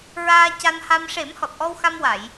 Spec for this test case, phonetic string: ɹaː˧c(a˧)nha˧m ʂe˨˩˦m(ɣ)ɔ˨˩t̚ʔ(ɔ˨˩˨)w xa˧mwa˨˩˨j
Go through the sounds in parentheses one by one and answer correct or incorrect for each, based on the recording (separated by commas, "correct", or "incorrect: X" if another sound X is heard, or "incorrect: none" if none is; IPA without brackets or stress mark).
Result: correct, incorrect: h, incorrect: ɔ˧